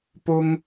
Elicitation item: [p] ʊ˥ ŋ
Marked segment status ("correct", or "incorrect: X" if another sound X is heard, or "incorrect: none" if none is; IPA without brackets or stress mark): correct